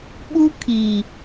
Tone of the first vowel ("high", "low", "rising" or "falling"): high